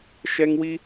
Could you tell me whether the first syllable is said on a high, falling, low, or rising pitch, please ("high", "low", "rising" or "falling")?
high